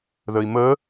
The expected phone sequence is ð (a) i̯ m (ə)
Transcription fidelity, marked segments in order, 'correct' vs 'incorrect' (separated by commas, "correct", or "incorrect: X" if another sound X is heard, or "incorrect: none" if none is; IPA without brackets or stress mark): incorrect: ə, correct